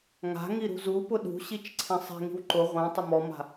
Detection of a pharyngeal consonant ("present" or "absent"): absent